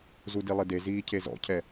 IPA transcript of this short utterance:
z u d i lˠ ɪ d e z iː cʰ e z ɔ̰ cʰ ɛ

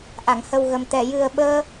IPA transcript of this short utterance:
ʔ a˨˩˨ ŋ h ə˨˩ w ɣ ə˨˩ m t̪ ɛ˨˩˨ j ɨ˨˩ ə̯ ɓ əː˧

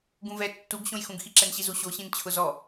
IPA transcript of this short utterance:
ɡ ũ v ɛ tː u ɡ ɕ õ j x ũ ɡ x i ǁ ɛ n ɕ i z u ɕ o ɕ ĩ n t͡ɕʰ ʊ z ɔ

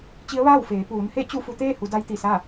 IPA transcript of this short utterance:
t͡ɕ i˧˥ ə̯ ʋ aː˥˨ w f eː˩˧ p uː˩˧ n h e˥˨ t͡ɕ u˥˨ f u˧ t̪ eː˥˨ h u˩˧ d a˧˥ j t̪ i˧˩ s a˥˨

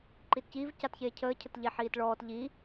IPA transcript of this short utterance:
ǃ i t c iː v c a t ç eː cʰ əː cʰ ə t ʎ e ħ iː t ɭ ɔː t ʎ i

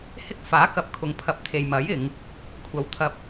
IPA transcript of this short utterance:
h ɪ˥ k̚ f aː˨˥ k ɐ˨˥ p̚ kʰ ʊ˨˧ ŋ pʰ ɐ˨˥ p̚ t̪ʰ e˨ j m ɐ˨˥ j ɪ˨˧ ŋ | kʷʰ ɐ˨ w t̪ʰ ɐ˧ p̚

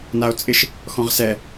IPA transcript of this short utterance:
n a o̯ t͡sʼ ɪ ʃ | x ɔ̃ ʁ s ɛ

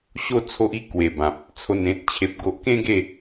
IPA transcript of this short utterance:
ɕ o˧ t͡sʰ o˦ ʔ i˦ k w e˨˩ b ã˨ p̚ | t͡sʰ o˨˩ n ẽ˨ t̚ t͡ɕʰ e˨ p̚ ɡ o˨ ʔ k ẽ˦ ɡ e˥˧

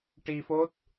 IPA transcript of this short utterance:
ʈ i˧ f o˦˥ t̚

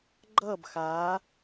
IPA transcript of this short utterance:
ɡ͡ǃ ʌː b x aː

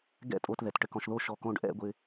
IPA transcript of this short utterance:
ɡ ɛ̰˥˧ tʼ o˧ t ð ɛ˩˧ t ʈ ɘ˧˩ k ɔ̃˧ ʃ ð o˥˧ ʃ ɔ˧˩ k õ˧ ɖ ʔ ɛ̰˥˧ ɡʷ ɪ˧

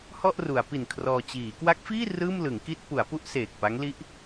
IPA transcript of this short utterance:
h ɔ˥˩ ʔ r u˩˦ a̯ p i˨˩ n kʰ r ɔː˧ t͡ɕ iː˩˦ k w a˦˥ k̚ f iː˥˩ r ɯː˥˩ m l ɯ˩˦ ŋ k i˥˩ t̚ p u˩˦ a̯ p u˥˩ ʔ s eː˨˩ k̚ p a˦˥ ŋ l i˦˥ ʔ

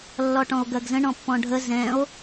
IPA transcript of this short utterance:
lː ɔ ʈ ɔ̃ o̯ ɡ ɜ ɡ z ə̃ ɳ ɔ̃ pː ɔ̃ ɖʱ ə z ɛ̃ o̯

